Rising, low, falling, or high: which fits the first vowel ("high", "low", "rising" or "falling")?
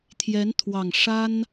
rising